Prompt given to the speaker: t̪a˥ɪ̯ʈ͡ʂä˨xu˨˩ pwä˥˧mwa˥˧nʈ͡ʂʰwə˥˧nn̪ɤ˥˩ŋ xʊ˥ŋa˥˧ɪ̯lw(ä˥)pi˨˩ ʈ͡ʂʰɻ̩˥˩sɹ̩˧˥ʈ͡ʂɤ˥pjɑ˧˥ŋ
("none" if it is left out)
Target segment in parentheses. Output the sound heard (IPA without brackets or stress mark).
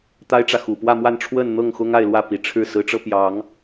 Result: ä˥˩